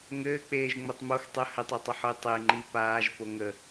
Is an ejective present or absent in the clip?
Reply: absent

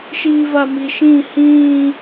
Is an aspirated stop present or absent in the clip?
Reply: absent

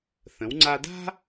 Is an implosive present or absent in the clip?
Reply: absent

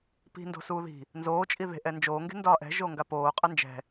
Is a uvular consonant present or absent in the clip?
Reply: present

